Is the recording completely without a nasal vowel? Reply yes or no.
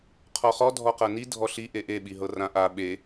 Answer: no